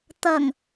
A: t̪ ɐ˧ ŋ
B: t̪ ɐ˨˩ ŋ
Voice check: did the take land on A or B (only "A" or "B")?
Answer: B